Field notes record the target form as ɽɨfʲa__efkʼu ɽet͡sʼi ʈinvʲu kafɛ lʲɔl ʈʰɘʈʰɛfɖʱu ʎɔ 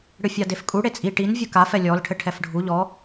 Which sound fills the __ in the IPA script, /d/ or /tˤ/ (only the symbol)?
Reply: d